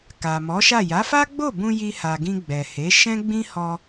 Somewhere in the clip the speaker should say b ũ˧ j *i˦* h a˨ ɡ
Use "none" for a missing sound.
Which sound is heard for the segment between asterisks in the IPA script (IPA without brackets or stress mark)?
i˧